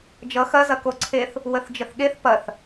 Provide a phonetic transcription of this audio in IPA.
d͡ʒ ʌ x ɐ z ɐ k o ǀʰ e θ | w ə θ d͡ʒ ə θ ɠ e θ p ɐ θ

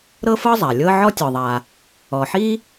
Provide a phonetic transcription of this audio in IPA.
ɾ ɤ˥ f ɤ˥ zˤ a˩ lʲ ɤ˥ ʕ ɔ˥ tʲ ɔ˩ ðˤ a˩ | ɔ˩ ħ i˥

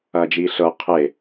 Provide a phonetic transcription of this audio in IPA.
ɐː d͡ʒ iː ɬ ɤ qʰ e

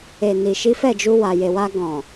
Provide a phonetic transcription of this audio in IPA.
e˨ n i˨ ʃ i˨˦ f ɛ˦˨ d͡ʒ u˧ w a˨ j e˨ w a˧ ɡ ɔ̃˨

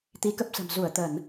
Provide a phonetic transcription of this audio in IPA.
t̪ i˨˦ k ə˦˥ p̚ s ə̤˨˩ m z u˧˩ ə̯ t̪ ə˧˩˨ n

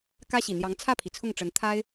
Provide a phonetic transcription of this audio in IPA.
k ä˥ ɕ i˨˩ n̪ j ɑ˧˥ ŋ t͡sʰ ä˥˩ pʰ i˩ t͡sʰ ʊ˥˩ ŋ ʈ͡ʂ ə˧˥ n t̪ʰ a˥ ɪ̯

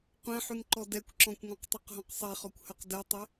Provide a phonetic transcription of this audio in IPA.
qʷ ɛ̃ ħ y ŋ ǃ ɔ d ɛ kʷ ǁ ɔ̃ kʷ ŋ ɔ̃ q tˤ y q ɦ ɔ̃ q sˤ e χ ɔ kʷ h œ q d ɛ tˤ e

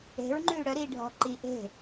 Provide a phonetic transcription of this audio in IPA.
e̤ ɹ ŋ͡ǃ yː ɽ œ ɾ iː ɖʱ ɔ̤ ǃ i ʔ e̤

